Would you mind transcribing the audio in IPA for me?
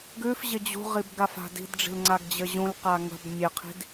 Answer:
ɡʉfʑɪ d͡ʑṳʁib ɡafa̤di̤dɖ͡ʐi̤l ŋ͡ǀaɡd͡ʑɘʑũlqa ŋə̤b mʲɘqʰi̤d

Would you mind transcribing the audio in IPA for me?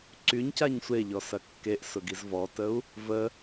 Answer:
ǀyɲcaɲ sʷeʎɔsɐ kːeʔsʊɡiz vɔtəu̯ | və

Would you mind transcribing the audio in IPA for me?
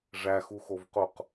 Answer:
ʐæxuxovquq

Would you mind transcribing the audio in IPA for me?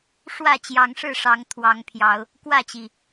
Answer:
ʂwä˥˨t͡ɕjɑ˨˦ŋʂɻ̩˥˨ʂɑ˨˦ŋ t̪ʰwɑ˨˦ŋpʰjɑ˨˦ʊ̯ | kwä˥˨t͡ɕi˩

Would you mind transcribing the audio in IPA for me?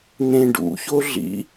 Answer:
n̪ẽɖṵço ɮḭ

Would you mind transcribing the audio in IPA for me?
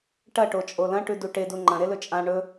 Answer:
ʈɐ ʈot͡ʃʼolɐ̃ ʈʉduʈedu ŋ͡ǃɐ̃ ɾelɵt͡ʃʼã ɳɵ

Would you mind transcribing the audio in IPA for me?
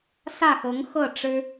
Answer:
sä˥˩xɤ˧˥ŋxɤ˥˩ ʈ͡ʂɻ̩˥

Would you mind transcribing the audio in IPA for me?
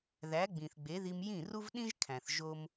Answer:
ðæ˨˦ɡ͡bĩ˨θɡ͡be˨˦ði˧m jĩ˦˨ru˦vɗĩ˦ʒkʰæ̃˨θ ʒo˦m

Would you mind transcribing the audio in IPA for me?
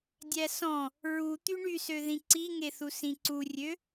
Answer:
dʲæsɔ̃ | ɹu t̪yɳysø ðĩǀiŋeθu sĩǀurʲø

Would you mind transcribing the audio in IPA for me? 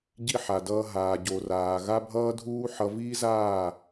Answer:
ɟi˦ ħa˨dʌː˧ ɦaː˨ɟo˨raː˨ ɣa˦bʱʌː˦dʱuː˦ħʌ˧ viː˦zaː˦˨

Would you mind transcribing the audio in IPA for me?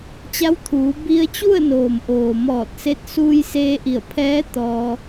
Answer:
t͡ɕa˧˥wt̪ʰuː˩˧ bi˧ə̯t͡ɕu˥˨ə̯noː˩mʔoː˩ mɔː˧˩t̚se˧t̚ suː˧jseː˧ʔi˧˩ə̯pʰɛː˧˥ t̪ɔː˧

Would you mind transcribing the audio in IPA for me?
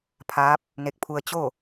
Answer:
pʰaː˧˥p̚ | ne˧k̚pʰu˧ə̯ t͡ɕo˥˨

